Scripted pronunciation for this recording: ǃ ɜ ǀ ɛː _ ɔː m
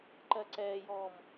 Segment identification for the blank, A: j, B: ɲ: A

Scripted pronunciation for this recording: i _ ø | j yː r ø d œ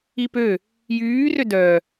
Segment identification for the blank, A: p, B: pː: A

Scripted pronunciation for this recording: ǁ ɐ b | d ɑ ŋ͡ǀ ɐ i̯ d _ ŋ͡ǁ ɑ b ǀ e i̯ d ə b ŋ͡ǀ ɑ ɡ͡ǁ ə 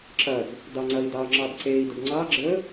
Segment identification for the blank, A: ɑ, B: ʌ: A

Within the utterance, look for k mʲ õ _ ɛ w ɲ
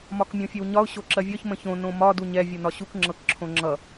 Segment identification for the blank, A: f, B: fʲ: B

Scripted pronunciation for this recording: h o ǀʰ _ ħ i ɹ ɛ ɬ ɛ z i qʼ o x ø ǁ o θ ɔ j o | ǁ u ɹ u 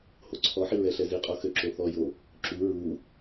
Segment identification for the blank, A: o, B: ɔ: B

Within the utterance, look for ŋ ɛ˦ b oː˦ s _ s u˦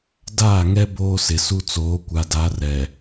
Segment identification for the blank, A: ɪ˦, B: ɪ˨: B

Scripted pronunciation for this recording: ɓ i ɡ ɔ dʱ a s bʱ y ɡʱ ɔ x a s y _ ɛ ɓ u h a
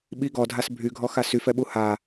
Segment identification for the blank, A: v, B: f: B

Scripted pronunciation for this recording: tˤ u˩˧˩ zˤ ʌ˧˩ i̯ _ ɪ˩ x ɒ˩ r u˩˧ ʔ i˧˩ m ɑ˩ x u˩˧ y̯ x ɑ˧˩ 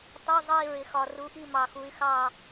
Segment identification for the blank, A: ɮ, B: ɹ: B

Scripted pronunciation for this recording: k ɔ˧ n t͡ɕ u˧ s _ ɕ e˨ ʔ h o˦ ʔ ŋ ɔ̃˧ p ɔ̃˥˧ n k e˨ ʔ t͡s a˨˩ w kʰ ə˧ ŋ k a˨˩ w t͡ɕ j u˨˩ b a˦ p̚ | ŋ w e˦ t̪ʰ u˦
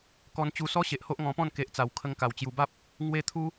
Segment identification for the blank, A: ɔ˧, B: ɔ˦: B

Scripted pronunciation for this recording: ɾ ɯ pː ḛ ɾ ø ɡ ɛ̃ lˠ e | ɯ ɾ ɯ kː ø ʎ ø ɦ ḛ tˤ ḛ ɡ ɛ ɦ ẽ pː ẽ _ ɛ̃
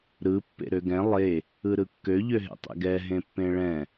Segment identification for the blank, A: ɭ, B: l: A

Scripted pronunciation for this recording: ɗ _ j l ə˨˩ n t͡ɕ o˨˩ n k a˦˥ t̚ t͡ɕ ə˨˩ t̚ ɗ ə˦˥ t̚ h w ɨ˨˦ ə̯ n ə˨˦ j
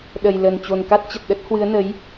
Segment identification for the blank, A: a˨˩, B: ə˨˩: B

